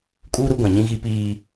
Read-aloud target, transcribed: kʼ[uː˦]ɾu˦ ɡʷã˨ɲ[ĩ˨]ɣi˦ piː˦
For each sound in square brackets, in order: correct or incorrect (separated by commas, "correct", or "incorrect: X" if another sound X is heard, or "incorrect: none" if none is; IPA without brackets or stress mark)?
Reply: correct, incorrect: ĩ˦